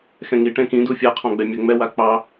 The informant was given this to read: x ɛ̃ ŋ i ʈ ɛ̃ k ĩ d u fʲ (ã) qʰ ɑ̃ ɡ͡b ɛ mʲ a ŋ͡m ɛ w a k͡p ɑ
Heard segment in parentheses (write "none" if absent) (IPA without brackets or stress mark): a